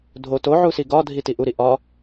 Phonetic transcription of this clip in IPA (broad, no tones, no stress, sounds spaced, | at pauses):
dʱ o t o ʕ u s i ɡ ɒ dʱ i t i ʔ u ɾ i ʔ ɒ